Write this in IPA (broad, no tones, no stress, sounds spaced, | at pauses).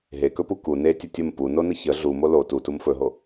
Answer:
ɦ e k ɵ p u k u n e tʲ ə tʲ ə m p u n o n ə ç ə ɮ u m o l o t u t u m f ɵ ɦ o